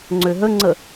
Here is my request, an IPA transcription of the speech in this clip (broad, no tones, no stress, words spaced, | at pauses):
ŋ͡ǀøɦəŋ͡ǀə